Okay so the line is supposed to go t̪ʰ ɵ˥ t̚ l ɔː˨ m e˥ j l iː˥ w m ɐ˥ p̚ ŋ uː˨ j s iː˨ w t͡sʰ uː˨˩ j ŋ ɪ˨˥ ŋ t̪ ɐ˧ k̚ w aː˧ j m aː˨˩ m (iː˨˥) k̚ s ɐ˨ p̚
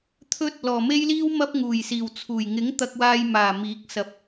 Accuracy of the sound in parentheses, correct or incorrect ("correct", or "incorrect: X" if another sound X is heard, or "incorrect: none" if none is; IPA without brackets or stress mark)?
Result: correct